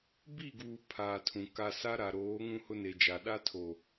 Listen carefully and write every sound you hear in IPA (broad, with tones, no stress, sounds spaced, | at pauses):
b i˦˨ ɡ uː˨ pʰ aː˨ tʰ ũ˨ k a˨ s a˦ ɾ a˨ ɾ oː˨˦ ŋ ũ˦ h ʊ˦ n e˨ d͡ʒ a˨ ɗ a˦ tʰ o˨